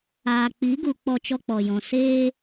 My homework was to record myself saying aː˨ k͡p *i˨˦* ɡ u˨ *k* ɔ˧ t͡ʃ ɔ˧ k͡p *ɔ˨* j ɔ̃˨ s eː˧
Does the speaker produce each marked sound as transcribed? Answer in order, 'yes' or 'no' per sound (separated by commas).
yes, no, yes